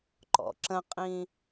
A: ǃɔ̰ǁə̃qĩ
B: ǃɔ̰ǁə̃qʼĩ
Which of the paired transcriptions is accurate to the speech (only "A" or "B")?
B